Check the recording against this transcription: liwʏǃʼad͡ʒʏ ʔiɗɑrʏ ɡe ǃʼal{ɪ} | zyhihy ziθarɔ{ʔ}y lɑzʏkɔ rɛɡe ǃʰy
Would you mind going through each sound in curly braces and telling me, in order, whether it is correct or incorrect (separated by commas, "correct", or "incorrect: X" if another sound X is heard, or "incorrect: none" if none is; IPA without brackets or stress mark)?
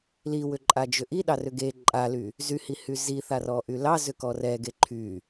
incorrect: y, correct